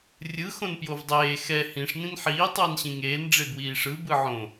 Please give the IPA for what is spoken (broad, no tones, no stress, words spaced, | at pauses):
rʲɯ xõnpjovdˤeː xɛ hĩʂ nĩnħiː tˤʌːnɕĩŋeːn ɖ͡ʐebwiːʂɯ bɯʕõ